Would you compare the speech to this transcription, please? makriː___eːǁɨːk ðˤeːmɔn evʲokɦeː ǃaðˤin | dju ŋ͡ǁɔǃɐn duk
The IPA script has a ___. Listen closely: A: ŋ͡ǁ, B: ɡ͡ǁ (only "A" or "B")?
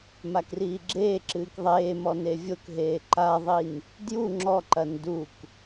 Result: B